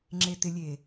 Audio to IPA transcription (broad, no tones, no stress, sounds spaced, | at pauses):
ŋ͡ǁ e t ɪ lʲ e